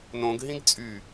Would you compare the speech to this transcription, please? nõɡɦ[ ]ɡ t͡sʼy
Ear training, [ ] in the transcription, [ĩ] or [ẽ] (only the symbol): ĩ